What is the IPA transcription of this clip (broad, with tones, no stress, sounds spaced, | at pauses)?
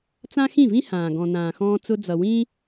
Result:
t͡s ã˦ x ĩ˦˨ v ĩ˦ h ãː˨ ɡ ɔ̃˨ n ãː˨ x ɔ̃ː˧ t͡s ʊ˧ d͡z ʌ˨ w ĩ˦